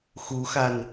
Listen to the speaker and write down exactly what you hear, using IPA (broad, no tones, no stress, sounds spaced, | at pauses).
x u x a n